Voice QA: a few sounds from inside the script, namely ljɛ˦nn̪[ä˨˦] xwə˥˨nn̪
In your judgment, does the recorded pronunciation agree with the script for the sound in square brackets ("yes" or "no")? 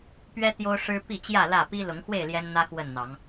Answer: no